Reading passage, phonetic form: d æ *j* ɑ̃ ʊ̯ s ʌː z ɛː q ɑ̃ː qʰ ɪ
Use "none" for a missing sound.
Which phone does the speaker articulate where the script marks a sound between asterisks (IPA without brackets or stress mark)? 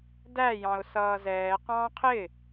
j